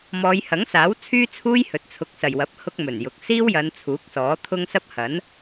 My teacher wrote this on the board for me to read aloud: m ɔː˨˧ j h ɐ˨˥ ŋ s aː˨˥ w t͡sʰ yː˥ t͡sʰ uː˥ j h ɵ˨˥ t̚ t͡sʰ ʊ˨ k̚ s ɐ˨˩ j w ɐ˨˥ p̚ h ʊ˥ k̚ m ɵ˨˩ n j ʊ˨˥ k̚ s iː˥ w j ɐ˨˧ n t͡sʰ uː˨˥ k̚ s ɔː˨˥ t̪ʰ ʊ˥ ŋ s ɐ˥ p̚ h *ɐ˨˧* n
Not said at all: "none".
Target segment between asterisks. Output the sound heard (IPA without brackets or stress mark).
ɐ˨˥